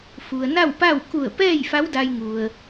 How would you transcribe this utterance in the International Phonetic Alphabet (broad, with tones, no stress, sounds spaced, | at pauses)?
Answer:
f u˩ ə̯ n a˥˨ w p a˥˨ w k u˧˩ ə̯ p ɛː˥˨ j f a˧˥ w d a˧ j ŋ u˩ ə̯